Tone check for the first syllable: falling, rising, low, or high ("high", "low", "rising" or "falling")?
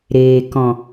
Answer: low